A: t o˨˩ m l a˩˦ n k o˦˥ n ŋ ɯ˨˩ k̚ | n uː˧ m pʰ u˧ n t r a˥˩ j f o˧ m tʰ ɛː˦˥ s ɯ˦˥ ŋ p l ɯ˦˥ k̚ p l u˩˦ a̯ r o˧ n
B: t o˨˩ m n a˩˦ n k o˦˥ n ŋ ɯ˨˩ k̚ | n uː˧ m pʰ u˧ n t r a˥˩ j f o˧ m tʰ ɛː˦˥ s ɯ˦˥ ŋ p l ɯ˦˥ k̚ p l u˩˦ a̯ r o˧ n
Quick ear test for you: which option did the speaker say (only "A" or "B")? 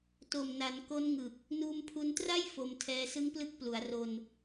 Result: B